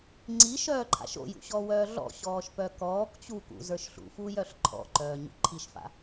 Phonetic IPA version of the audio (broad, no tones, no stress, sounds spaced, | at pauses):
ŋ͡ǀ i ʃ œː ǃʰ a̰ ʃ o̰ j ṵ ɕ ɔ w œː ɮ ɔ̰ ɕ ɔː ʃ p œ k ɔː k t͡ɕ u k ṵ z ə˞ ʃ ɬ ṵ f u j œ ɬ ǃʰ ɔ̰ ǃ œː ɲ ṵ ǃʰ i ʃ f a̰